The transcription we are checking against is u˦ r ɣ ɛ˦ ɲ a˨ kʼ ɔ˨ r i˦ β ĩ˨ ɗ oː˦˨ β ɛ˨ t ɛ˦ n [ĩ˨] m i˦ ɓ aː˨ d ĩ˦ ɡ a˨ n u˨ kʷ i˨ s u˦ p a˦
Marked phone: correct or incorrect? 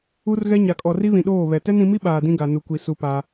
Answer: incorrect